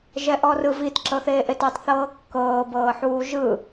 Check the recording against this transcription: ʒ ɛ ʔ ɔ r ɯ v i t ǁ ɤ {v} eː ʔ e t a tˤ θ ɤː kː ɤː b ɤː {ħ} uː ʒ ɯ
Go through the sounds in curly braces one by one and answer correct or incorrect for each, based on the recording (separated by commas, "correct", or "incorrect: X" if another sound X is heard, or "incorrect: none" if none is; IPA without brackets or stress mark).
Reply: incorrect: θ, correct